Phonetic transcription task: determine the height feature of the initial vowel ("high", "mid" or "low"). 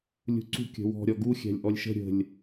high